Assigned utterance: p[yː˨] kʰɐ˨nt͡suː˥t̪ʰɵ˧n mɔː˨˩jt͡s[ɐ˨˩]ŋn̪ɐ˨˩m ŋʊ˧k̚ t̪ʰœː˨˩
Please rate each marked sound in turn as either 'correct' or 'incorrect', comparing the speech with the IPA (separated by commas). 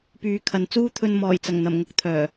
correct, correct